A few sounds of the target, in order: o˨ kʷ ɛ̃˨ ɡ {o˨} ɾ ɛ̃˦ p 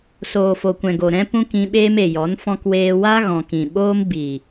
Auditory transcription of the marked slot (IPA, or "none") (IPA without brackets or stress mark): o˨